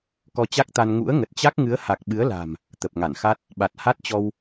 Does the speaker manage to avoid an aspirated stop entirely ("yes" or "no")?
yes